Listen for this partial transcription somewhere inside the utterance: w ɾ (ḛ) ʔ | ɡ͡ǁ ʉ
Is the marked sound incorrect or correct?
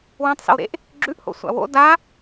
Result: correct